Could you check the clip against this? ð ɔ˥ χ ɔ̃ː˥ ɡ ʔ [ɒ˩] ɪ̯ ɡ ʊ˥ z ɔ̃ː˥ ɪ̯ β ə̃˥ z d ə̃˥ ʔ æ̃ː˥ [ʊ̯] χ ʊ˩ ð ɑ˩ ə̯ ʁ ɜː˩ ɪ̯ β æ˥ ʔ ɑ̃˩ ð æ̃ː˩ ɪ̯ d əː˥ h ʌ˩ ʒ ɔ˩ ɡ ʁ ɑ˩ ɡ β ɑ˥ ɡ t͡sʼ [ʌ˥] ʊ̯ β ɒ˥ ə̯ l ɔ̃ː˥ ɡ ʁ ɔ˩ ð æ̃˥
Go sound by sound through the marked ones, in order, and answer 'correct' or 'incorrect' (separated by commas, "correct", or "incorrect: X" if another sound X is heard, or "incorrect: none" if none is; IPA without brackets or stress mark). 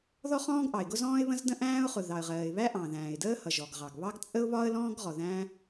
incorrect: ɑ˩, correct, incorrect: ə˥